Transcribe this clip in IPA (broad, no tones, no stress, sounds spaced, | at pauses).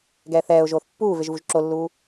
ɡ ɛː θ ɛː ʊ̯ ʒ oː θ pː uː v e ʒ v u ʒ ǁ o lː uː